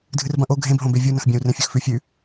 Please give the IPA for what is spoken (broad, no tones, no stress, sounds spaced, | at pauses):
dʱ ɨ r b ɐ̃ ʔ o ɡʱ ẽ b ɦ õ b e vʲ u n ɐ̃ x bʲ ɐ̃ u̯ r ẽ fʲ ɵ x f ʉ fʲ ʉ